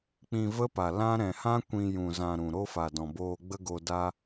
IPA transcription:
k͡pĩ˧ və˦pa˨ lã˦ ɾɛ̃˨hã˦ kʷĩ˧jũ˨ zã˨ ɾũ˨ɾo˦ fa˨dɔ̃˨boː˧ ɡ͡bə˦ɡo˧ da˦

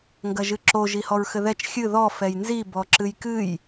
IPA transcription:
ŋɡɐʒɨǁo ʒihɔɹxɘðɛt͡ʃ xʲɨ ðɔ fɛjnzi bɔǁɨjkɨj

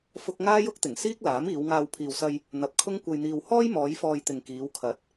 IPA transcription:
fʊ˥k̚ ŋaː˥jʊ˥k̚ t̪ɪ˨˩ŋsiː˥k̚laː˨˥m iː˨˧wŋaː˧w pʰiː˨wsɐ˧j | n̪ɐ˨p̚kʰʊ˥ŋkʷɐ˧jn̪iː˧w hɔː˥jmɔː˨˧j fɔː˧jt̪ɪ˨ŋkiː˨˧w kʰɐ˨˥t̚

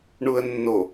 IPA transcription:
ɳuə̯nːo

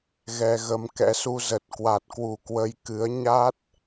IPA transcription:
ɣɛ˧ɣə˧m kɛ̰˧˥su˧zə˨˩t̚ kwa˨˩t̚kwu˧˩ kwə˧jkɨ˨˦ə̯ ɲa˦˥t̚

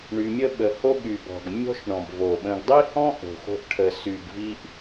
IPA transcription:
ɳy˧mʲə˦ɓə˧ ho˦ɠy˨bɔ̤˨ɡ mʲɔ̤˦ʃɳɔ̃˨bvo˨ ɓə̃˧ɡ dˤi˦hɔ̃˦ ʔo̤˨xo̤˧ʔ ʈʰə˨sy˨ɡvi˧ʔ

